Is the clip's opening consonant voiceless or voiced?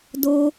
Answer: voiced